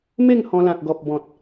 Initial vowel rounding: unrounded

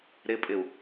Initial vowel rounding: unrounded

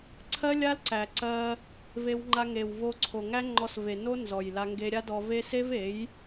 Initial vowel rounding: unrounded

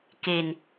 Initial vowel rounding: unrounded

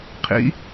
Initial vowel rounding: unrounded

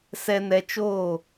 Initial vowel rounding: unrounded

